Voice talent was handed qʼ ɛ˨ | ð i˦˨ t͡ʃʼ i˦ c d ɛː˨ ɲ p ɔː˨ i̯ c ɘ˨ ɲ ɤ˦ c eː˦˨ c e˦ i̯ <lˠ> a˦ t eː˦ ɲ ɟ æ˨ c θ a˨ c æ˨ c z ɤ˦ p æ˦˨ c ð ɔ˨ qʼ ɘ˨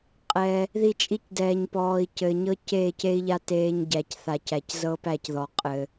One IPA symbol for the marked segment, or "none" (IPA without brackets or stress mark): ʎ